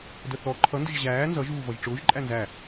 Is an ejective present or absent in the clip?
present